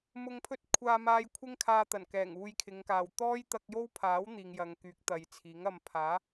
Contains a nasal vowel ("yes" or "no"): no